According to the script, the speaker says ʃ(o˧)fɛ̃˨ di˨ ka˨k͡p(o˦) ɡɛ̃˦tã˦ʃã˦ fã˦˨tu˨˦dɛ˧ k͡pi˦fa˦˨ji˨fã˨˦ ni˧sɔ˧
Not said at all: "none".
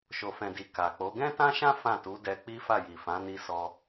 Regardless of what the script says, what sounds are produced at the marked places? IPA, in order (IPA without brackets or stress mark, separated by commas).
o˨, o˨˦